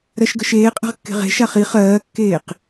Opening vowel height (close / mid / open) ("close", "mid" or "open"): mid